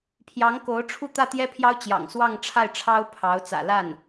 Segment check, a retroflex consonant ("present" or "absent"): present